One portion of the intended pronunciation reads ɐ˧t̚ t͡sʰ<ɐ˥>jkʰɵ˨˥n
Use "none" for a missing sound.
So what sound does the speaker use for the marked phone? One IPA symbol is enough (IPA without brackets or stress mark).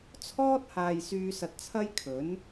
ɐ˥